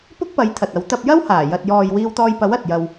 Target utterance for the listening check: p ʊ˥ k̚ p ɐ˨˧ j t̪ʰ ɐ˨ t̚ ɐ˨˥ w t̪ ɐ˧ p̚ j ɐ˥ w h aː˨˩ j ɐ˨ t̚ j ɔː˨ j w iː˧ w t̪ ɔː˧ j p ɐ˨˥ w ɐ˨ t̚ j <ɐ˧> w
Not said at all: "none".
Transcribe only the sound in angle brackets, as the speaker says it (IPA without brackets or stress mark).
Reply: ɐ˧